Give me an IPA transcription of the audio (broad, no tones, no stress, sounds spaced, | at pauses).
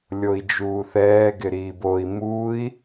lʲ o i̯ d͡ʒ uː θ ɛː ɡ ɪ ɾ iː b o i̯ m uː i̯